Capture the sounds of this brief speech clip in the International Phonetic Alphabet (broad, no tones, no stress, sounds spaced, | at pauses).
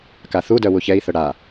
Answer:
k a θ u d œ w u ç ɛ i̯ θ œ ɽ a